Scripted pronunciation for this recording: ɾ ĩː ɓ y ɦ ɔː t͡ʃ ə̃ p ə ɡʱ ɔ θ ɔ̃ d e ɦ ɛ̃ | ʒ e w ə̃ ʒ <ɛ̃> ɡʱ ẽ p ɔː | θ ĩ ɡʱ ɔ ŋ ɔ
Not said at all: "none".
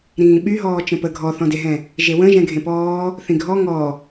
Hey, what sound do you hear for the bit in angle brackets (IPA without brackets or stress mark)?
ɛ̃